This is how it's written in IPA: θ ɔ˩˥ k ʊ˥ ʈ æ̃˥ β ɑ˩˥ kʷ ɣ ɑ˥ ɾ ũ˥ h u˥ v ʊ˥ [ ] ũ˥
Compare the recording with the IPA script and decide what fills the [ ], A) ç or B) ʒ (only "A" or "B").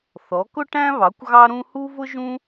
B